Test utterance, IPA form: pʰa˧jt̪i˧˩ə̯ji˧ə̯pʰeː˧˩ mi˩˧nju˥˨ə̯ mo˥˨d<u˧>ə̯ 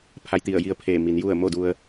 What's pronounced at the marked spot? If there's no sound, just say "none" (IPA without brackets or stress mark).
u˧